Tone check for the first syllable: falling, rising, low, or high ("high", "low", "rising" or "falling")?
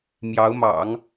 rising